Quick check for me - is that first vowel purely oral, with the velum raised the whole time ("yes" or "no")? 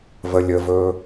yes